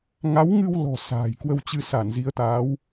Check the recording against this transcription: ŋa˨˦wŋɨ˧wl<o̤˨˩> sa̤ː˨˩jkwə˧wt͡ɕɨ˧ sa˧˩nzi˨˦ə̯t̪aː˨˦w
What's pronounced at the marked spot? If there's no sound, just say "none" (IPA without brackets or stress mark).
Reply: ɔ̤˨˩